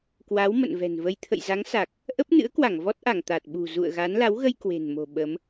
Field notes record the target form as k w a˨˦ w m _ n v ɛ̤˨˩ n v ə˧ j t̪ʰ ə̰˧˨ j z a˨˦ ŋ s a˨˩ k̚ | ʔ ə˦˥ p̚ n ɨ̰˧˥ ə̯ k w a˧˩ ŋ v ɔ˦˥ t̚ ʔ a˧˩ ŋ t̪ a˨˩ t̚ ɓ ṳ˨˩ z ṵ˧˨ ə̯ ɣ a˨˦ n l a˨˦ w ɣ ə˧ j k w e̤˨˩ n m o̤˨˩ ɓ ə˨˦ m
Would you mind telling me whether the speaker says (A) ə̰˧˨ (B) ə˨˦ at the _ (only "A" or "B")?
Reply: A